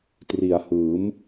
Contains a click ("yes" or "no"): no